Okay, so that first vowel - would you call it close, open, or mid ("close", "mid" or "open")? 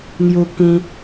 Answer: close